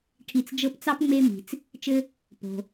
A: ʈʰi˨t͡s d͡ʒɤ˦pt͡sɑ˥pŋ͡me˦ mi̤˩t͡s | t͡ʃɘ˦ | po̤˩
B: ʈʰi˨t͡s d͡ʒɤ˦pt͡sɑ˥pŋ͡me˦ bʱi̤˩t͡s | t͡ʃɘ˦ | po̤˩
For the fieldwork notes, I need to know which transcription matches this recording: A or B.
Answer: A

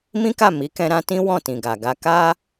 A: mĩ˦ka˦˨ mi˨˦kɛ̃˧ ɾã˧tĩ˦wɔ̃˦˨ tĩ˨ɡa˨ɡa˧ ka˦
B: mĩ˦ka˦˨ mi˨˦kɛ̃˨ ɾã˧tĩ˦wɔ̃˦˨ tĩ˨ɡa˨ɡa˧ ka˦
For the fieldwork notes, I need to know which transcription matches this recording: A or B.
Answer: A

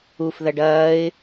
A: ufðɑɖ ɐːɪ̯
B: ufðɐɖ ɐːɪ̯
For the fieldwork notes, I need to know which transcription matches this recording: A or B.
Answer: B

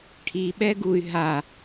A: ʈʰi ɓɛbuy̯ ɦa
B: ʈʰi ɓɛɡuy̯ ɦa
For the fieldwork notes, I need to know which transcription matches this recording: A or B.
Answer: B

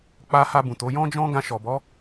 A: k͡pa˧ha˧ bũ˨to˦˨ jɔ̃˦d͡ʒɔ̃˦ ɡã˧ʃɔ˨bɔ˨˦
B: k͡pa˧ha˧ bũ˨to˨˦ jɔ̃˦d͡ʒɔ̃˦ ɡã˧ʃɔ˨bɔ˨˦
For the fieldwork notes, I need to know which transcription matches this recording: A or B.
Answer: B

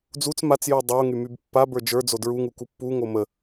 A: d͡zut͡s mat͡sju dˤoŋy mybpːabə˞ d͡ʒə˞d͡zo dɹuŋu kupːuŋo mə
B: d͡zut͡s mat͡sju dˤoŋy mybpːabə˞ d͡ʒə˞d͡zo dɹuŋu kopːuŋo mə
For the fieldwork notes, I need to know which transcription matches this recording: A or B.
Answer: A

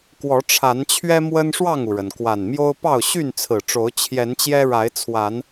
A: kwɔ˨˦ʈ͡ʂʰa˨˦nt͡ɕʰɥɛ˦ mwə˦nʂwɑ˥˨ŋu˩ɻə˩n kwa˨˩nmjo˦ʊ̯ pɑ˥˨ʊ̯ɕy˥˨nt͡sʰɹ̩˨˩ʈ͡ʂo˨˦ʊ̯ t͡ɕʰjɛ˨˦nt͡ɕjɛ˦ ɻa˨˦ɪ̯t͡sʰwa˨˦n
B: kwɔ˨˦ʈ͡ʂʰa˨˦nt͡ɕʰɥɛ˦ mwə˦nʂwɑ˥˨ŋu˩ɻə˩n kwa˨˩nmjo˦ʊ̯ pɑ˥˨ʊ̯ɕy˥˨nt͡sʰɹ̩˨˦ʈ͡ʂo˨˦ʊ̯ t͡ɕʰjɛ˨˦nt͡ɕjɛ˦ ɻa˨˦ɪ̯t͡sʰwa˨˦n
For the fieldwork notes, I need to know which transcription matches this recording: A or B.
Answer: A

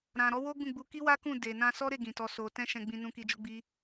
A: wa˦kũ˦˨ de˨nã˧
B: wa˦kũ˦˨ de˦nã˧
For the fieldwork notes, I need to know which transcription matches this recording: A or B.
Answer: A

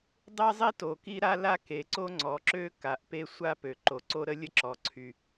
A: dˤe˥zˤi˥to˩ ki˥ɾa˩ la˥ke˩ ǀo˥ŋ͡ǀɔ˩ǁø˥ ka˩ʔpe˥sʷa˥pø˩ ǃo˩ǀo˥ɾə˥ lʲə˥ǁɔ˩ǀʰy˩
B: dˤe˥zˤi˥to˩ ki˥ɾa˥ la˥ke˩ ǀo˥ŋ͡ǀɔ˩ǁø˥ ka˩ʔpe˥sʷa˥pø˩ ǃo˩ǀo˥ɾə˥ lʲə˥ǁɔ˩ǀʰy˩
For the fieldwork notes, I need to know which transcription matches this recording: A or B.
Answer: B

